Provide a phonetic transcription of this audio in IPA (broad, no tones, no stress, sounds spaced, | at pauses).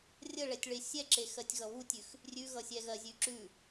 rʲ ə ɭ ɛ tʲ ɭ e sʲ ɛ ǁ e x ɜ tʲ ɣ ʌ β u tʲ ʉ x | rʲ ʉ ɣ ʌ sʲ ɛ ɣ ɜ zʲ ʉ ǁ ʉ